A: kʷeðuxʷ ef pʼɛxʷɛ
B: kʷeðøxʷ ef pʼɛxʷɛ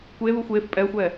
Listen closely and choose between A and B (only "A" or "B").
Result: A